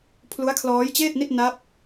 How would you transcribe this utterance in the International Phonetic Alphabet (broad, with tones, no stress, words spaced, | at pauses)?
pʰlu˦˥a̯kʰlɔː˦˥jt͡ɕeː˥˩t̚ni˥˩t̚ na˦˥p̚